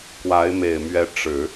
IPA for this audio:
k w a˧˥ ɪ̯ m e˨˩ ɪ̯ m ɥ ɛ˧˥ ʈ͡ʂ ɻ̩˨˩˦

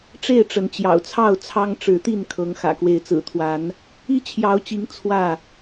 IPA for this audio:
ʈ͡ʂ e˥˨ ɪ̯ ʈ͡ʂ ə˨˦ n t͡ɕ j ɑ̰˨˩ ʊ̯ t͡sʰ ɑ˥˨ ʊ̯ t͡sʰ ɑ˦ ŋ ʈ͡ʂ ɻ̩˨˦ t̪ i˥˨ n kʰ ɤ˨˦ ŋ x ä̰˨˩ k w e˨˦ ɪ̯ t͡s ɹ̩˨˩ t̪ʰ w a˨˦ n | i˦ t͡ɕʰ j ɑ˨˦ ʊ̯ t͡ɕ i˨˦ ŋ t͡sʰ w ä˥˨

